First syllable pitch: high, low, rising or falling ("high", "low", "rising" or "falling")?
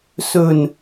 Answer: low